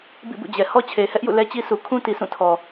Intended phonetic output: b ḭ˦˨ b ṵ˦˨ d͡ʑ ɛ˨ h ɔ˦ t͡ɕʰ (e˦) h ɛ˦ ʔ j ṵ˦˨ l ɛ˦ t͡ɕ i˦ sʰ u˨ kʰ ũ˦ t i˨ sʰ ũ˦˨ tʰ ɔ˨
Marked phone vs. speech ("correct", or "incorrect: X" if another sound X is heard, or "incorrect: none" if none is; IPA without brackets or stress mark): incorrect: e˨